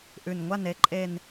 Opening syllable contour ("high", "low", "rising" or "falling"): low